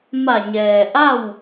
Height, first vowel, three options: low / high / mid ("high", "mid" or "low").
low